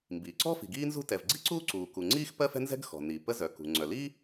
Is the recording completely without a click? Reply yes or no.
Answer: no